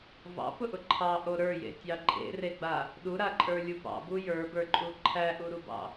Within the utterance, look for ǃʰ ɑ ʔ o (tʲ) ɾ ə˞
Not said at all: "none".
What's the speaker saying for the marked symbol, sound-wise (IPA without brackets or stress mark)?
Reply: none